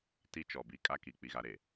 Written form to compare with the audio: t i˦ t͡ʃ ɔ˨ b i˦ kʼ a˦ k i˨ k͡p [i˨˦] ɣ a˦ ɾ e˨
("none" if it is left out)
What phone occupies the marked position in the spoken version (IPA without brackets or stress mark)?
i˦